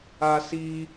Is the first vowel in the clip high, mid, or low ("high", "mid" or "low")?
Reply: low